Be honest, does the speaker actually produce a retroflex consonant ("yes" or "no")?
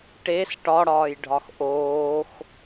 yes